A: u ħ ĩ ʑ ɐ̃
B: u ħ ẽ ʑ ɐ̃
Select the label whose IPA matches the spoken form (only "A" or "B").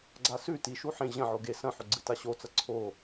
B